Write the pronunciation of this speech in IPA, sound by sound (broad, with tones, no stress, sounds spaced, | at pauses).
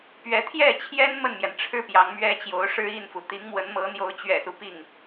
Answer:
p ɥ ɛ˧˥ t̪ʰ j ɛ˥˩ t͡ɕʰ j ɛ˥ n m ə˥˩ n m j ɛ˩ n ʈ͡ʂʰ ɻ̩˥ p j ɑ˧˥ ŋ m ɥ ɛ˥ t͡ɕ j o˧˥ ʊ̯ ʂ ɻ̩˥ i˥˩ n f u˩ t̪ i˧˥ ŋ m w ə˧˥ n m ɤ˧˥ n̪ j o˧˥ ʊ̯ t͡ɕ ɥ ɛ̰˨˩ s u˦ p i˥˩ ŋ